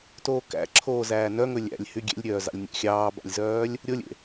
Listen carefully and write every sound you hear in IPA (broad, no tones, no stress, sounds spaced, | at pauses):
t oː k æ̰ ǁʰ oː z æː n œ ŋ ɵ lʲ æ̰ lʲ h y ɡʲ ḛ lʲ ɾʲ œː z ɑ̰ lʲ nʲ æ̰ xʲ ɑː b ɑ̰ lʲ z œː lʲ | ɾʲ o lʲ ḛ